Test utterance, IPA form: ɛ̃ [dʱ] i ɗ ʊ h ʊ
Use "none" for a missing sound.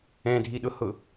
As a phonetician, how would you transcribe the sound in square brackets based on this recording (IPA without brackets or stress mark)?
dʱ